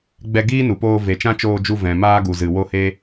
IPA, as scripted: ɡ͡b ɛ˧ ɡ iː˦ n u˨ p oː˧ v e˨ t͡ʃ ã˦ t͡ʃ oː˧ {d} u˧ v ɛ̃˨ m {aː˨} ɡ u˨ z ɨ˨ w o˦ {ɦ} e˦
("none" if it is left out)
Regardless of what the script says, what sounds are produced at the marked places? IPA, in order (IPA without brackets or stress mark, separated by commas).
d͡ʒ, aː˦, h